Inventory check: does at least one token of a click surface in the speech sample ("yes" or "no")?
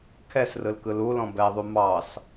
no